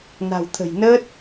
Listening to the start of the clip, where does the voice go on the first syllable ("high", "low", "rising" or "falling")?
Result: low